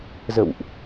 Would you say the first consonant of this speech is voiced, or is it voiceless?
voiced